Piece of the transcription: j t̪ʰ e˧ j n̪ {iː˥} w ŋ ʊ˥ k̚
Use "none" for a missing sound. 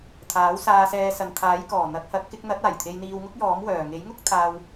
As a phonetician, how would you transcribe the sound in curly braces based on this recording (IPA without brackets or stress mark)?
iː˧